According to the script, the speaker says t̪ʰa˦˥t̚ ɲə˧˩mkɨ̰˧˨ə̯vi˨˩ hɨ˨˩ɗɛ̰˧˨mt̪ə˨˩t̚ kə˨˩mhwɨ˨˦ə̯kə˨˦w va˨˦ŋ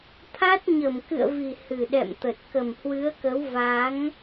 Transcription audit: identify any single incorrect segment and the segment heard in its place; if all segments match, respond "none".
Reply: none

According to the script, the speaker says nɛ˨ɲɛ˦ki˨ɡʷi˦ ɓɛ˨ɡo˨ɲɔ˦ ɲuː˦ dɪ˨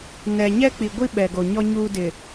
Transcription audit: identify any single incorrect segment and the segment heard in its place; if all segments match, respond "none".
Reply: k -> k͡p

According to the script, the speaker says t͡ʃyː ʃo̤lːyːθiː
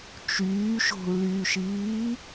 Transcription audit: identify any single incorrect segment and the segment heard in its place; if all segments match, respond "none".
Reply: θ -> ʃ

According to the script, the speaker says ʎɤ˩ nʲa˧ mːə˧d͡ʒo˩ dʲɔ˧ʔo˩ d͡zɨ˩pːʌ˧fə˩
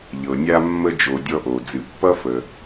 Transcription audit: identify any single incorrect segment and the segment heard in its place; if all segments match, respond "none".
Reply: none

